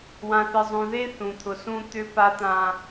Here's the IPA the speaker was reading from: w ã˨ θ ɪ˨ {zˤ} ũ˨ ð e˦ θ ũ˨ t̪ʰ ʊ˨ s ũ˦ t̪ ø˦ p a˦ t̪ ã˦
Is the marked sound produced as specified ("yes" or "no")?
yes